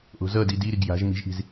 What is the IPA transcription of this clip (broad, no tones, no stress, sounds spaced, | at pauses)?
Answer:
ʔ o̤ z ʌ d i d i ɾ i ɡ j a̤ ʒ m i̤ ʒ ʔ i̤ z